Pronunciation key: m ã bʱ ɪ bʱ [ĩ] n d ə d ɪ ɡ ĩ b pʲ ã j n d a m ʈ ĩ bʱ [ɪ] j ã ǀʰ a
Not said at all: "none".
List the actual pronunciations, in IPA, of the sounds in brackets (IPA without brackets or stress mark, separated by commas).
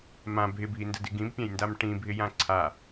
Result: i, ɪ